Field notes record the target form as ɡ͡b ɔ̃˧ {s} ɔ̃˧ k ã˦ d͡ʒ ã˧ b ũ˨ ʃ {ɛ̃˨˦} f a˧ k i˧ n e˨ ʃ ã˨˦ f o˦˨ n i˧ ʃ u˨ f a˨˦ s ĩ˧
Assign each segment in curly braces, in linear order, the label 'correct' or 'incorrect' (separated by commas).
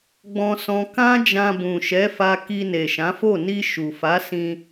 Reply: correct, incorrect